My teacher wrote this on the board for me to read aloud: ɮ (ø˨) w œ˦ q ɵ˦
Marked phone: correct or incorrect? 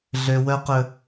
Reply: correct